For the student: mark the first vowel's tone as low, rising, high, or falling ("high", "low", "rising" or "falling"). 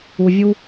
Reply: low